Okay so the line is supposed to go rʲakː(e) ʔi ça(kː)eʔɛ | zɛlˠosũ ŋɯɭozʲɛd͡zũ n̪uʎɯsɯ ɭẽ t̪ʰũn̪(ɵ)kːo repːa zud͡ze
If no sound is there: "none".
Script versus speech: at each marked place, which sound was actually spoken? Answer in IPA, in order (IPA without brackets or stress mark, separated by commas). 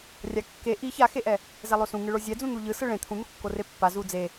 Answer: e, x, o